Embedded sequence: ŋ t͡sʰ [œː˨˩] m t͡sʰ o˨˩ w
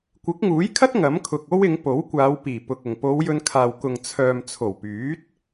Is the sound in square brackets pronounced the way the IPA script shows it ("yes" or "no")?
no